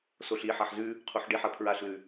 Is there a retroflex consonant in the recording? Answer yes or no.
yes